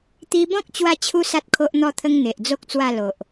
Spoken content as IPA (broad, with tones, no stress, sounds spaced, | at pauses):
t̪ i˧ b ɔ̃˦ k̚ t͡ɕ w a˥˧ t͡ɕʰ u˦ s a˦ t̚ kʰ o˦ ʔ n̪ ɔ˥˧ t̪ʰ ə˦ ŋ n̪ e˨ ʔ d͡z o˦ k̚ t͡s w a˥˧ l o˨ ʔ